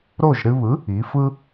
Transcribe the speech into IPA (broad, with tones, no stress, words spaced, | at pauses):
ɾo˥˩ʒ ɾɨ˧βɯ˩˥ | i˩˥fɯ˥